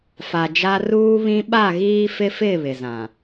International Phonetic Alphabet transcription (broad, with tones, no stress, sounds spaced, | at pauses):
f a˨ d͡ʒ a˦ r uː˦ β ĩ˦ ɓ a˦˨ ɣ iː˦ f ɪ˦ f ɪ˦˨ β ɪ˨ z ã˨